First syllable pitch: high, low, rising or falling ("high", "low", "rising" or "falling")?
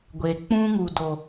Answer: low